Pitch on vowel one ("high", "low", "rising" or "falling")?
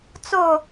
falling